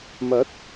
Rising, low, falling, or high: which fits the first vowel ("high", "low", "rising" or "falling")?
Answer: rising